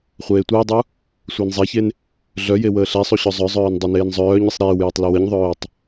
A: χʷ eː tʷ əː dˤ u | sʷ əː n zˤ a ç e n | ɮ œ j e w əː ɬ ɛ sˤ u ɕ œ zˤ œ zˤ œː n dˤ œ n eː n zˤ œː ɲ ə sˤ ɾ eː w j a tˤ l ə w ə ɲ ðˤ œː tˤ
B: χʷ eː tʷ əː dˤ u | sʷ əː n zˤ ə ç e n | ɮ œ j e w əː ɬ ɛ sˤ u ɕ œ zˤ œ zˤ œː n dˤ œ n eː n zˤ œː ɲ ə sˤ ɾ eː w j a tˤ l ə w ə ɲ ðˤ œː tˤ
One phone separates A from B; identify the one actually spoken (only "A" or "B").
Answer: A